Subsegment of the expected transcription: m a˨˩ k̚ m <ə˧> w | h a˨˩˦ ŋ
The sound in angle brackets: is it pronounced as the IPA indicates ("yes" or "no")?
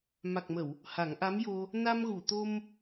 no